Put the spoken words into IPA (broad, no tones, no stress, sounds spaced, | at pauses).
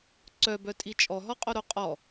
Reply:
ǀ œ b œ tʼ i t͡ʃʼ ɔ ɦ ɔ qʼ o ɾ o qʼ ɔ